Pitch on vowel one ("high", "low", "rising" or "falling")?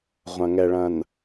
low